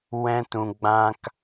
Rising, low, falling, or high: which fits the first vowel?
high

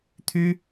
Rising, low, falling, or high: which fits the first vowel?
high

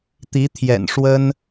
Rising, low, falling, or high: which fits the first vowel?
rising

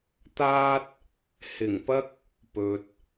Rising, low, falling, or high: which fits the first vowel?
high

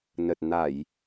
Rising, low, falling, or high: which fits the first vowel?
low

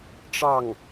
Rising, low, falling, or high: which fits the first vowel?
falling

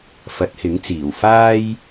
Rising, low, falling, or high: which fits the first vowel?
rising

